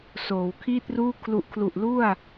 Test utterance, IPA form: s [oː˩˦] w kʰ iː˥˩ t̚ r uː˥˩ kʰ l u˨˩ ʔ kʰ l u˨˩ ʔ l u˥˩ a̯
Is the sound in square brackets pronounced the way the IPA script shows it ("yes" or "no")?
yes